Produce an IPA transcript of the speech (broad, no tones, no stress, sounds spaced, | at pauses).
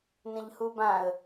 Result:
n ə̃ ʎ h u b ã ə̯